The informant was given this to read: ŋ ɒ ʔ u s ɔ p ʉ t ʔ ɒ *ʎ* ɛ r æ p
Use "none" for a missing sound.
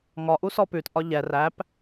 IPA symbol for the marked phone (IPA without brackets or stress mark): ʎ